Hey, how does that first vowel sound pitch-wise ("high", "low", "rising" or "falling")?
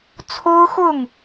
high